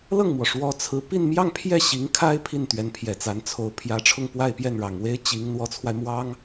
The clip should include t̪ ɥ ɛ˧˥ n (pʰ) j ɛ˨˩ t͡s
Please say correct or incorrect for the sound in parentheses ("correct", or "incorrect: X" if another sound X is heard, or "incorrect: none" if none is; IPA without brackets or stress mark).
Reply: correct